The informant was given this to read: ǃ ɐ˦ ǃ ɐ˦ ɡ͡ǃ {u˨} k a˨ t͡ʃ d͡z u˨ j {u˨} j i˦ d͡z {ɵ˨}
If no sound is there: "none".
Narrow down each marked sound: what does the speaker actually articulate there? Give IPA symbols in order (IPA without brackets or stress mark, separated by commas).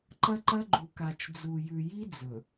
u˨, ʉ˨, ɵ˨